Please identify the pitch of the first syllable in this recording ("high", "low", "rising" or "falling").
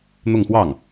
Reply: falling